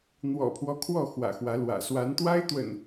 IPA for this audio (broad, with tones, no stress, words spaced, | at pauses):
n̪wɔ̰˨˩pʰwɔ˦ kʰwɔ˥˨xwä̰˨˩xwä˨˦lwä̰˨˩ swa˨˦nt̪wa˦ɪ̯t̪wə̰˨˩n